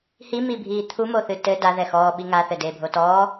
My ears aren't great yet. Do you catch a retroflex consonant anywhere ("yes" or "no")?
no